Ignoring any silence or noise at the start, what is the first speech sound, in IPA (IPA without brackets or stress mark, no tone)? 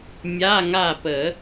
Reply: mʲ